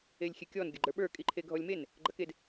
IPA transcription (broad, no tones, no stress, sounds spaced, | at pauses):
e lʲ xʲ e kʲ ɔ n ɡʲ ɐ ɡ͡ǃ ə˞ ɓ ə˞ kʼ i ǃʰ e ɡʱ ɔ lʲ m e n | ɡ͡ǃ ɐ k e d